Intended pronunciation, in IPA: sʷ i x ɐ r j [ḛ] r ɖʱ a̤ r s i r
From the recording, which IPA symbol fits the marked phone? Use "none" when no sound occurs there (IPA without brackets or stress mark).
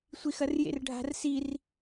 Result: ḛ